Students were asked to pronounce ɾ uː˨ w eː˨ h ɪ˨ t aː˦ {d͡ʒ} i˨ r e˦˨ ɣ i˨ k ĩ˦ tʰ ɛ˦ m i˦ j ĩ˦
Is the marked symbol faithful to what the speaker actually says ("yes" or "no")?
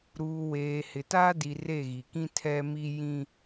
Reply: no